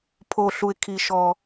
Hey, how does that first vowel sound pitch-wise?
low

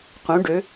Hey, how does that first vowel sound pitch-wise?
rising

